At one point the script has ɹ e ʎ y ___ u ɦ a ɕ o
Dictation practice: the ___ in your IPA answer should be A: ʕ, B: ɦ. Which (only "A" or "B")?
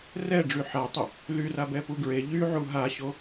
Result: A